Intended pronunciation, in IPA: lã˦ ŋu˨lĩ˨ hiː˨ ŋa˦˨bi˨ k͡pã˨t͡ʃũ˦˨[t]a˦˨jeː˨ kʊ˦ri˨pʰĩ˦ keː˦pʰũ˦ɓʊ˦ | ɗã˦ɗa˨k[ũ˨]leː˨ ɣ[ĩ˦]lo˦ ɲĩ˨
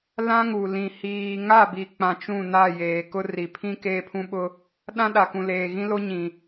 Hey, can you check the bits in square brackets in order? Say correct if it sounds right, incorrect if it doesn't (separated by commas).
incorrect, correct, correct